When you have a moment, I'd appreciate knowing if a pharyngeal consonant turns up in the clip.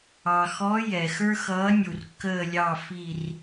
no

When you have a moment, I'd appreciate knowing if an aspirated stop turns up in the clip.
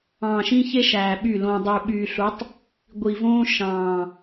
no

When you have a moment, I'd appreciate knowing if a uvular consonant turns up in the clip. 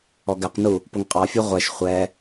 yes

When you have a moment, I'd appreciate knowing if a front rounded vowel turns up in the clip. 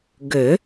yes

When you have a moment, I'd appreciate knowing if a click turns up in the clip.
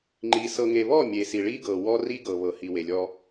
yes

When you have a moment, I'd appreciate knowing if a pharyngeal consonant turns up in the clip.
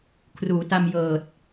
no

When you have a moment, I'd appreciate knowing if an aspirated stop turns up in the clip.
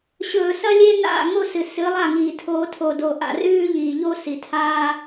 yes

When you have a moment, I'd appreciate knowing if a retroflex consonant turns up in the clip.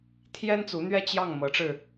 yes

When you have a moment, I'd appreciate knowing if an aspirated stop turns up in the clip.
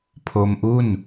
yes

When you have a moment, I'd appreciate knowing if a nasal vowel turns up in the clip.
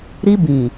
yes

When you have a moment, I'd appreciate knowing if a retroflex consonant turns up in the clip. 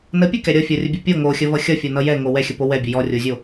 no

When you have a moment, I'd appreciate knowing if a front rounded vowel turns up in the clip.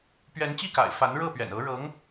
no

